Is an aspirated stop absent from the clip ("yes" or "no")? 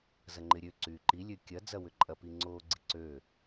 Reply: yes